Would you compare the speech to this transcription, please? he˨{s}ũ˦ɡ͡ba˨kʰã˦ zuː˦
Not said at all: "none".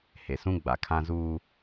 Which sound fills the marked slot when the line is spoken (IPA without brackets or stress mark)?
s